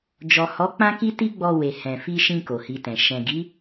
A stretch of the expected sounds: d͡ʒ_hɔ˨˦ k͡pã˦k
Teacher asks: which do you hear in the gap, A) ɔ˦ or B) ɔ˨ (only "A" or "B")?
B